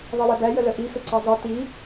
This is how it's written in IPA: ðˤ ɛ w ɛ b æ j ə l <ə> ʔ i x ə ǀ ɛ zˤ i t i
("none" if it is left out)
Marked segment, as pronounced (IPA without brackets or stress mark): ə